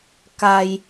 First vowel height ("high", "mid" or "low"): low